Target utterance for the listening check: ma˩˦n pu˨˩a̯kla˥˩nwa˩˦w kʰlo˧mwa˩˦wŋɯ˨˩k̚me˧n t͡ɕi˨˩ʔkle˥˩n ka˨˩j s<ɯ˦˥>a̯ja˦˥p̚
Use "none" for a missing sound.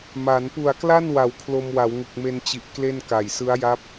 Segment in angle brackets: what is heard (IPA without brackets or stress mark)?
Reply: ɯ˦˥